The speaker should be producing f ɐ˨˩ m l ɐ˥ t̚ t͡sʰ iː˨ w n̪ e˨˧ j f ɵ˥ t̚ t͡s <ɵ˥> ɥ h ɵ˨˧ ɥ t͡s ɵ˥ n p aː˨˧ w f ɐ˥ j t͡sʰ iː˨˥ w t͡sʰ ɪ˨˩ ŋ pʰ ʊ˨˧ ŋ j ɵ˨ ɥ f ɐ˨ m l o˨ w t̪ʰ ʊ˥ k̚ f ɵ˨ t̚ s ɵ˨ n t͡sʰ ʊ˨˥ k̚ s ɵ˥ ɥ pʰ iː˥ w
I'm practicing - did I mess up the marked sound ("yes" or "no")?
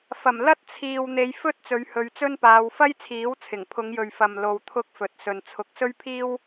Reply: yes